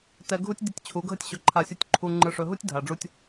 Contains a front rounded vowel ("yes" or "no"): no